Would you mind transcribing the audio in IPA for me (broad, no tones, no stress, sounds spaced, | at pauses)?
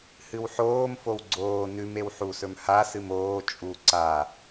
h ɨ w ħ oː m f o w ɡ͡ǀ oː n ʉ m e w ħ u s ɵ m h a s ɨ m oː t͡ʃʼ u ǀ a